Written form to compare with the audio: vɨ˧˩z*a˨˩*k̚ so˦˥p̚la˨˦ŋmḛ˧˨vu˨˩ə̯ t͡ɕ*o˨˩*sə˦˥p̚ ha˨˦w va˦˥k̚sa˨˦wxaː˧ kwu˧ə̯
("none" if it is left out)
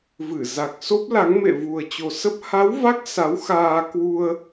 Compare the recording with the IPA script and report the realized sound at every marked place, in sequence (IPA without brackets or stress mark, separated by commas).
a˨˩, o˨˩